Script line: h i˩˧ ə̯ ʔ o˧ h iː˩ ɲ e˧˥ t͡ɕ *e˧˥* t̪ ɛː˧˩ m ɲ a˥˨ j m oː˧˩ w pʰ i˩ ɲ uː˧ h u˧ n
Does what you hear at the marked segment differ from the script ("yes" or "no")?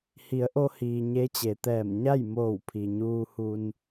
yes